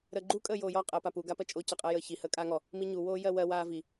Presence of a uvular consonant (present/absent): present